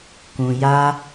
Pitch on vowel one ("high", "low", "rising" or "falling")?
low